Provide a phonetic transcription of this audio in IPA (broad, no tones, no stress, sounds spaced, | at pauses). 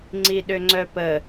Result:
ŋ͡ǀ i ɗ ø ŋ͡ǀ œ p ə